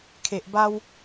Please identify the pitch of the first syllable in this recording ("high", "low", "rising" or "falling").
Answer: low